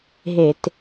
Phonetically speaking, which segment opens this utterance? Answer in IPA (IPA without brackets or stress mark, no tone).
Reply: ɦ